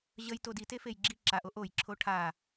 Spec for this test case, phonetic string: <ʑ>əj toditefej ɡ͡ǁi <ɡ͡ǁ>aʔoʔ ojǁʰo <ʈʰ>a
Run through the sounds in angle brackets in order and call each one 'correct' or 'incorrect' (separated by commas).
correct, incorrect, correct